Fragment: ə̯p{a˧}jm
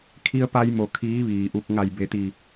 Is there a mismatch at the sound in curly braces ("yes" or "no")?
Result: no